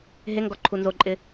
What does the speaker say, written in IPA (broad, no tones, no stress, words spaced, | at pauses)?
ɦeŋɡɔ ǃʰunzoǃʼɪ